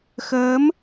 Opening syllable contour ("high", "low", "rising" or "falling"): rising